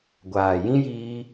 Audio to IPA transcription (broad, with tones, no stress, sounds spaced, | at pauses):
ɡʷ aː˨ j ĩ˦ j iː˧